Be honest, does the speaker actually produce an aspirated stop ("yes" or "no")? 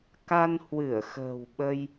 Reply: no